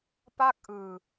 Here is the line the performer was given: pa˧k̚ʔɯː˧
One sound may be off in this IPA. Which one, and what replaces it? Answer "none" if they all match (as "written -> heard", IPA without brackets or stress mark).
a˧ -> a˥˩